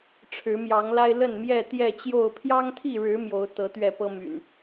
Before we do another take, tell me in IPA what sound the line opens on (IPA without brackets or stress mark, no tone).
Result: ʈ͡ʂʰ